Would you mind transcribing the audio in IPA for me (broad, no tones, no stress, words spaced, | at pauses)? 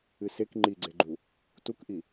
ɨsek ŋ͡ǃiɡ͡ǀeɡ͡ǃu | tukʔi